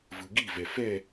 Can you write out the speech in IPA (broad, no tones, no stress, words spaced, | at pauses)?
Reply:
vɯɡivɛ fɛ